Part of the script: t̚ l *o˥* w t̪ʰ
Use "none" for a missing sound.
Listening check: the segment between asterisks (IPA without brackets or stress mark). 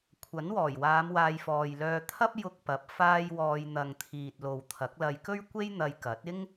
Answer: o˨